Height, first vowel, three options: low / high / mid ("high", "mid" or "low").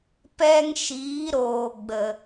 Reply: mid